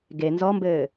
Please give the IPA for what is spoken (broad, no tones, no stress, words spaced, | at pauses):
ɡe nzɔmbɘː